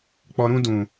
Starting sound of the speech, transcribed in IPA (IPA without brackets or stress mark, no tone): k͡p